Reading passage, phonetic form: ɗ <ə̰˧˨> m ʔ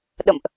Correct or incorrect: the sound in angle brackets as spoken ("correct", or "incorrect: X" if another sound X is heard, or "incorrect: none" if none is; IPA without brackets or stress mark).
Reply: correct